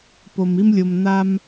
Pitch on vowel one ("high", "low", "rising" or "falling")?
low